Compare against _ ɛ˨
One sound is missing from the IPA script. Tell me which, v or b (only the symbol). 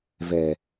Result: v